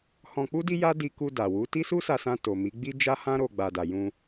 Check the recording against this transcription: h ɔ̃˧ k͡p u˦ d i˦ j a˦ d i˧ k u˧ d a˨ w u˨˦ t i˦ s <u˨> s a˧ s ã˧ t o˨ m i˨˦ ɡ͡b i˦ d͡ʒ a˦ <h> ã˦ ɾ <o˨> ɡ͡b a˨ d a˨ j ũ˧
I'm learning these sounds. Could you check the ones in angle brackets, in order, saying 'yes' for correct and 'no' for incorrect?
no, yes, no

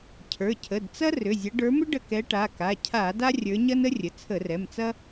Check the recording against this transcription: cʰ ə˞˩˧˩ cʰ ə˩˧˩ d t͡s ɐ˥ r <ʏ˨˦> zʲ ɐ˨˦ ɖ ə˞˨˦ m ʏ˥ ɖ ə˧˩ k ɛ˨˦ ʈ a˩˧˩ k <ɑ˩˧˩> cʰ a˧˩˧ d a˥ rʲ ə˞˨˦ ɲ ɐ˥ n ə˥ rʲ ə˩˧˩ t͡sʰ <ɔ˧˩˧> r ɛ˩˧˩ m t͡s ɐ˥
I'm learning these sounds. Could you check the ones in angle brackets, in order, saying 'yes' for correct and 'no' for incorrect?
no, no, no

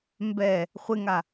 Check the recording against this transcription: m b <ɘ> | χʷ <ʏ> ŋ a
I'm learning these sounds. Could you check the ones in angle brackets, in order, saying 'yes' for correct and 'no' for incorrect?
no, no

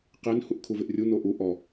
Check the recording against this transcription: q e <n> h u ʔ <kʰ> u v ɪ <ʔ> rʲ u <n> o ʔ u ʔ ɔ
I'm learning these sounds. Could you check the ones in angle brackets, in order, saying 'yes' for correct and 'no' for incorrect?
yes, yes, yes, yes

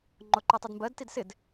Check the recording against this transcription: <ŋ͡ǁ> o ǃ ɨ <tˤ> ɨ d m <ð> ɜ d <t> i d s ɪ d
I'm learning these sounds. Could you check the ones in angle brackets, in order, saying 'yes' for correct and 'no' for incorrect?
no, yes, no, yes

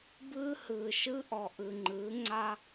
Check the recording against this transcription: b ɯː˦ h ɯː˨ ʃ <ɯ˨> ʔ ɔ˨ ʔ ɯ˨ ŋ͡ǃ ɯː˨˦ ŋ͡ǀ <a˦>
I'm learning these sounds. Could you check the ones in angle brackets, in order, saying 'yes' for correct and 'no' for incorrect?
no, yes

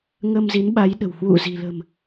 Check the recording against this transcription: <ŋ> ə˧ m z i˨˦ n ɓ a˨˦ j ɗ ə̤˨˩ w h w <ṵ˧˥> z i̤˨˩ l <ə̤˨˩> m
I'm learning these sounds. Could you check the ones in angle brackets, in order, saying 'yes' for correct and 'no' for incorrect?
yes, no, yes

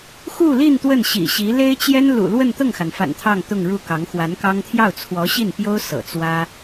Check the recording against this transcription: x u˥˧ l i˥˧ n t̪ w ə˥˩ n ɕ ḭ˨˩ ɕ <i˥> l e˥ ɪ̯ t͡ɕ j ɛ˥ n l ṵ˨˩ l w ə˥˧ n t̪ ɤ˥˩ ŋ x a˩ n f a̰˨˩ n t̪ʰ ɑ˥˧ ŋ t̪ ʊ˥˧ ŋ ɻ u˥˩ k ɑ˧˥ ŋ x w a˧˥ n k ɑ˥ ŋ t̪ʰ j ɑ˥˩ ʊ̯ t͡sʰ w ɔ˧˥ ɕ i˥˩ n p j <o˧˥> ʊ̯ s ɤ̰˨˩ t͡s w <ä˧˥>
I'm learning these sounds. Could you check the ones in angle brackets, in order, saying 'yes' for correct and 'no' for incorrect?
no, no, no

